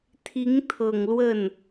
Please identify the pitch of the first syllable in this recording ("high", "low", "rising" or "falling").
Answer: rising